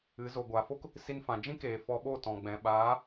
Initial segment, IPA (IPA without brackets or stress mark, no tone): ɨ